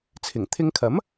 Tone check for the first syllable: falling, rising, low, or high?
low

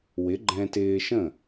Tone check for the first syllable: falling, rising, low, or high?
rising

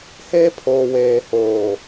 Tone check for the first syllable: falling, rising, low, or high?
high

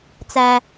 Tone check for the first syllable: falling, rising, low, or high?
high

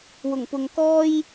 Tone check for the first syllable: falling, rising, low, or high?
low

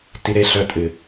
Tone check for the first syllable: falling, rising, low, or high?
high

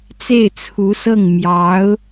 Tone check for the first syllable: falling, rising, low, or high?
falling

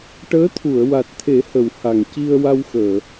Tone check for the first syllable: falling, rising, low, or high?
rising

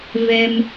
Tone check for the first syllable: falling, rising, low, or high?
high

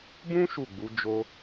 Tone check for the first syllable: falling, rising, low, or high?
high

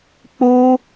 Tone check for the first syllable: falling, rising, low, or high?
high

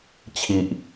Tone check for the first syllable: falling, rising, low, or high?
low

